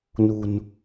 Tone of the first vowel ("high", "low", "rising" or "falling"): low